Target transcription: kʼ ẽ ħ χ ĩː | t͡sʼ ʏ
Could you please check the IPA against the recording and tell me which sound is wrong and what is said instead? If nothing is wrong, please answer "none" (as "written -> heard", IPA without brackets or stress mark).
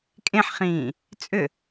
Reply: none